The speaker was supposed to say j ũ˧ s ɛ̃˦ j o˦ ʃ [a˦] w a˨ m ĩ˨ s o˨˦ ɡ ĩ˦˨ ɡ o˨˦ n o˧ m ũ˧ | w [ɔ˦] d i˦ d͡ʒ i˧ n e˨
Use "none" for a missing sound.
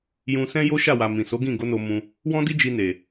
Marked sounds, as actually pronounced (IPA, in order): a˦˨, ɔ̃˦

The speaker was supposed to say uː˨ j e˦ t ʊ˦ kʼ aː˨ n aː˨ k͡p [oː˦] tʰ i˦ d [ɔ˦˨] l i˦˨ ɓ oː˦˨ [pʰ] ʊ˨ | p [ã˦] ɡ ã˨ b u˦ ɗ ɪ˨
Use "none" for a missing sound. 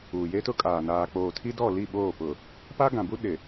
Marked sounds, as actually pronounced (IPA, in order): oː˨, ɔ˦˨, p, a˦

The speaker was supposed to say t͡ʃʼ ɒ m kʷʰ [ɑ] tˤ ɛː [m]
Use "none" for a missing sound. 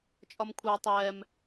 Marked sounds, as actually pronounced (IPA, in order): ɑ, m

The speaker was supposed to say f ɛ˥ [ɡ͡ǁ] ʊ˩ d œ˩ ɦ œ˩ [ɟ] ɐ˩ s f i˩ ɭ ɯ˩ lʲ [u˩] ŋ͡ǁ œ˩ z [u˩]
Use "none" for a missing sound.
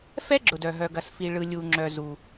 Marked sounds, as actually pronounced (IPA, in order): ɡ͡ǁ, ɡ, u˩, u˩

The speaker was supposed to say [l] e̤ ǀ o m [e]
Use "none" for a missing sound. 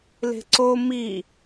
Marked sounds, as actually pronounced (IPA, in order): l, i

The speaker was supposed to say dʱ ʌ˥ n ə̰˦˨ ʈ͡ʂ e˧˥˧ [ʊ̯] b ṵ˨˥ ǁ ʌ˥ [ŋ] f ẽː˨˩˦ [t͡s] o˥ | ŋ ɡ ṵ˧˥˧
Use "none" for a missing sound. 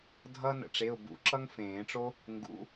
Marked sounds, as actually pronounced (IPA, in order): ʊ̯, ŋ, ʈ͡ʂ

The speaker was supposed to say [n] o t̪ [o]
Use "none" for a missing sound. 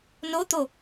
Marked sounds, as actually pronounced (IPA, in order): n, o

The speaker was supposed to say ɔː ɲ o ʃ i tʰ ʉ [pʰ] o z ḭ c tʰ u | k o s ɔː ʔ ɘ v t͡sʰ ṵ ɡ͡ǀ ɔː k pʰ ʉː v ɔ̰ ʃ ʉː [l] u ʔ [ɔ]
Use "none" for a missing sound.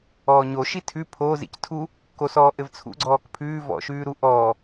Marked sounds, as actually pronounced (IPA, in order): pʰ, ɾ, ɔː

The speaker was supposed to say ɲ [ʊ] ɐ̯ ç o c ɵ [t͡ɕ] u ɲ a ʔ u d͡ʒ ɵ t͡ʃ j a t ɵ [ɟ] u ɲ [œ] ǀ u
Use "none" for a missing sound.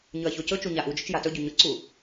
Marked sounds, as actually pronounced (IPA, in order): ɵ, t͡ʃ, ɟ, ɵ

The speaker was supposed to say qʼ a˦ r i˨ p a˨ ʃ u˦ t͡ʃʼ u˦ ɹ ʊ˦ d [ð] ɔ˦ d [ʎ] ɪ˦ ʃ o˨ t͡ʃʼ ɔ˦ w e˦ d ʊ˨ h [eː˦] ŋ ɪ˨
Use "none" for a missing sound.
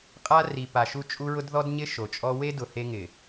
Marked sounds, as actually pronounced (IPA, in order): ð, ɲ, e˦

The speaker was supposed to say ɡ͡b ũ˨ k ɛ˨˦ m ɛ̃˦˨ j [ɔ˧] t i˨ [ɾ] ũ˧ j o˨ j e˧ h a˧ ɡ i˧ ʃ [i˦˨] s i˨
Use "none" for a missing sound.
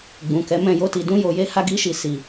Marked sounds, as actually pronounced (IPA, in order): o˧, d, i˨

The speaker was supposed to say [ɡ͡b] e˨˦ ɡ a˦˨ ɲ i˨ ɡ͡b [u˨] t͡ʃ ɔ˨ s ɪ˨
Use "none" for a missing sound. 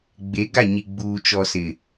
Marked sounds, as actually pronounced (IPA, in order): ɡ͡b, uː˨

